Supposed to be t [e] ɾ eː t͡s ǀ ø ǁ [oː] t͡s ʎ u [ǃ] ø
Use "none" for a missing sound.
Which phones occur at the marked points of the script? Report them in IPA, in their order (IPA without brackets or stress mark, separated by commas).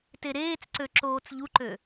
e, oː, ǃ